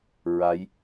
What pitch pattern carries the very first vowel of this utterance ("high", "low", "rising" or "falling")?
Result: rising